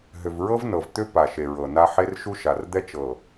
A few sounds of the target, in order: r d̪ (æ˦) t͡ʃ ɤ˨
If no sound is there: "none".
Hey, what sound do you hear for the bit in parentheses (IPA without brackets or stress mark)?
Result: ɛ˦